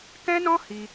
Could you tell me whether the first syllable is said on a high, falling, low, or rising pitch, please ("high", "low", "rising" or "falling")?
high